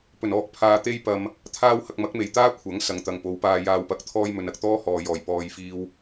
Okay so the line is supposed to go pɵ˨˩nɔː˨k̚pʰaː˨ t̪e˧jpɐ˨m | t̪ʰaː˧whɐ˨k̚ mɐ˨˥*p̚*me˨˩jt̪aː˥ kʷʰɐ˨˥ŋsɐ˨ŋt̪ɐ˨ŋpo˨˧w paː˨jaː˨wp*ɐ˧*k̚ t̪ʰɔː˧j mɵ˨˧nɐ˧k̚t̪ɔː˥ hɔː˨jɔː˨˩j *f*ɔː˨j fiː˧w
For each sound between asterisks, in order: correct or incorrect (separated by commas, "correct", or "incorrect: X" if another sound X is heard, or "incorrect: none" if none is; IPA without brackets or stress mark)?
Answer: incorrect: k̚, incorrect: ɐ˨, incorrect: p